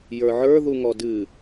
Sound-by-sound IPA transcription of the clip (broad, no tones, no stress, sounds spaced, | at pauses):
j ə˞ ʕ ə˞ ð u ŋ ɔ d ɨ